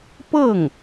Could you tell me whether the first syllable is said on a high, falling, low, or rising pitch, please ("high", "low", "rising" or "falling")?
falling